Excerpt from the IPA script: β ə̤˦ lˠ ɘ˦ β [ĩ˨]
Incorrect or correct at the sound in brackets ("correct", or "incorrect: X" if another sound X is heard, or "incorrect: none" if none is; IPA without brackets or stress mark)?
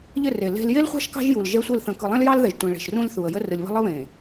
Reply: incorrect: ẽ˨